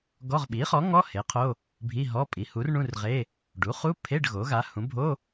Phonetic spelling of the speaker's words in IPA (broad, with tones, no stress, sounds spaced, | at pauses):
ɡ ɔ˧˥˧ ʁ ɓ i˩˥ χ ɔ˩˥ ŋ ɔ˧˥˧ h e˩˥ qʰ o˧˥˧ | bʱ i˧˥˧ ɦ ɔ˧˥˧ pʼ i˩˥ h u˩˥ r ɳ ũ˧˥˧ r ʁ e˧˥˧ | ɖ u˩˥ χ u˧˥˧ pʰ e˧˥˧ ɖ ɣ o˩˥ ɣ a˩˥ h ũ˩˥ bʱ o˧˥˧